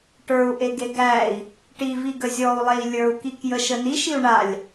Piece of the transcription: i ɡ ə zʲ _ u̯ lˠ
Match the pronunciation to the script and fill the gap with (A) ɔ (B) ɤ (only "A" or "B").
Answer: A